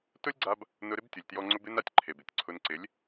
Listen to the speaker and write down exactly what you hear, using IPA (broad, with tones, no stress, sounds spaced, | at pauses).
t ʊ˦ lʲ ɡ͡ǀ a˧ b | n ʊ˧ ɾ ɪ˦ b tʲ ʊ˨ lʲ t j ɔ˧ ŋ͡ǀ ʊ˦ b ɪ˦ n a˨ tʲ ǃʰ e˨ b ɪ˦˨ tʲ ǀʰ ʊ˧ n ǀ ɪ˨˦ lʲ